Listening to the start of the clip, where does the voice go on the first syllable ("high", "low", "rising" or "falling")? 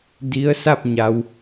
rising